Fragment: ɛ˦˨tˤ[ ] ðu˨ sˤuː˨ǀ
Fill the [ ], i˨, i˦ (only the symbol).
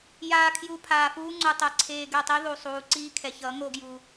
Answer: i˦